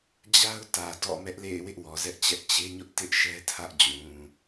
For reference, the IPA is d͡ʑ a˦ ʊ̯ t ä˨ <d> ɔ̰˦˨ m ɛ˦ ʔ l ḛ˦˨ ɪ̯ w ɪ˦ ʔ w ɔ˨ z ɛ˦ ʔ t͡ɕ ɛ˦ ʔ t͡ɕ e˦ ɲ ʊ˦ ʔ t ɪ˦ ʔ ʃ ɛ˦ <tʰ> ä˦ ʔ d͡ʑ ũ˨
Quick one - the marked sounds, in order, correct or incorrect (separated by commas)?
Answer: correct, correct